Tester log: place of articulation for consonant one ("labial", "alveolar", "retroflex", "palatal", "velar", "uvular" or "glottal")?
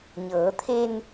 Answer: palatal